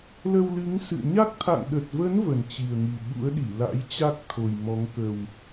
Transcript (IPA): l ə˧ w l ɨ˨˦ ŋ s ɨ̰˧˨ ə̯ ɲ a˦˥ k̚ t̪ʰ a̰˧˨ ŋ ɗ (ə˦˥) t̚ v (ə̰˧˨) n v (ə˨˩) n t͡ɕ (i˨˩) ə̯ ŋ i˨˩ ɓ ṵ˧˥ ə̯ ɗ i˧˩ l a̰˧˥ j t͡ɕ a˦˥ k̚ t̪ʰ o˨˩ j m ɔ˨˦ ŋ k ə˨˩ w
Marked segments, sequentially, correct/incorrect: incorrect: ə˨˩, incorrect: ə˨˦, correct, correct

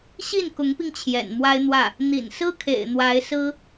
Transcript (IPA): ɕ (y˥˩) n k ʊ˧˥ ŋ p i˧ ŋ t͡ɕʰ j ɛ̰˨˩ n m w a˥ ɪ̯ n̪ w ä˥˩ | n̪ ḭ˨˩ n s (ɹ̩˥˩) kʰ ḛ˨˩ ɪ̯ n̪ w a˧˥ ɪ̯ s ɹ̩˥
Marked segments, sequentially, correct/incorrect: incorrect: i˥˩, incorrect: ɹ̩˥

